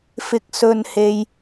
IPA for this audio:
f ɪ˧ k̚ s ɵ˧ n h e˧ j

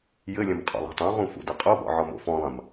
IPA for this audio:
j ɘ lʲ ɐ̃ m qʼ ɔ̰ lˠ a̤ tˤ õ ʁ ũ f ṵ d ɘ qʼ o b ɔ̰ ʕ ɔ m o̰ f ɔ̃ lˠ ɐ̃ m

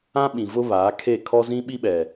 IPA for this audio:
ã˦ ɓ ĩ˨ v ʊ˦ β aː˨˦ kʰ e˦˨ kʰ ɔ˦ z ĩ˦ ɓ i˦ ɓ ɛ˨

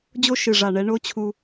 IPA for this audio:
d͡ʑ o˦ ʃ ɨ˨ ʐ a˨ ɳ ɛ˦ ɳ o˦ t͡ɕʰ u˧

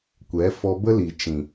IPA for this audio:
kʷ ɛ˨˦ f ɔ˧ b ə˦ l i˨ t͡ʃ ĩ˨

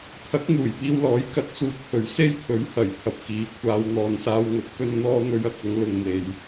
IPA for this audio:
t̪ʰ ɐ˨˥ k̚ n̪ uː˨˩ j p iː˧ w l ɔː˨˥ j k ɐ˧ t̚ t͡s uː˨ k̚ h ɵ˨˩ ɥ s e˥ j pʰ ɵ˨˥ ɥ h ɐ˨˩ j pʰ ɐ˨ p̚ k iː˨˥ kʷʰ aː˨˧ w n̪ ɔː˨ n s aː˧ w ŋ ɵ˨˥ t̚ k ɵ˧ n n̪ ɔː˧ n̪ ɵ˨˧ ɥ ɐ˥ k̚ ɐ˨˥ ŋ l ʊ˨ ŋ n̪ e˨ j

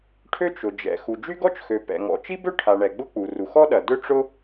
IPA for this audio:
ʈʰ ø˥ t͡ʃ ʊ˩ d͡ʒ ɛ̰˩ x u˩ d͡ʒ y˥ ɡ ɔ˥ t͡ʃ x ø˩ p ɛ̰˩ ŋ ɔ̰˩ t͡ʃ i˥ b ø˥ ʈʰ a˩ ɳ ɛ˩ ɡ͡b ʊ˥ k͡p u˩ r u˩ x ɔ˥ ɗ ɐ˩ d ʏ˥ ʈ͡ʂ ʊ˥

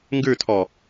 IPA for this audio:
ŋ ɡ ʉ tʰ ɔ

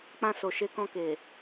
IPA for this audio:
k͡p ã˧ s o˨ ʃ e˨˦ k ɔ̃˧ k e˨

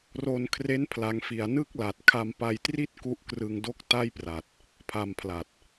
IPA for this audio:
r o˧ n kʰ r e˦˥ n pʰ l a˦˥ ŋ f i˧ a̯ n ɯ˥˩ k̚ l a˨˩ t̚ kʰ a˧ m p a˧ j t r i˥˩ t̚ k u˦˥ ʔ k r ɯ˧ ŋ d o˥˩ k̚ t a˥˩ j p r a˨˩ t̚ | pʰ a˧ m pʰ l a˨˩ t̚

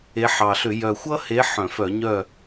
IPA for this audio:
e˨˦ ħ ɑ˨˩ ɬ ʏ˧˩˧ j œ˨˩ xʷ ʌ˦ h e˨˦ ħ œ̃˧˩˧ f œ˧˩˧ ɲ œ˥˨

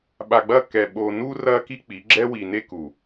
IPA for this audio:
ɓ a˨ ɡ͡b ɐ˦˨ k ɛ˨ ɓ o˨ n u˦ r ɐ˦ k i˦ k͡p i˨˦ ɡ͡ǁ ɛ˦ w i˨ n e˦ k u˨

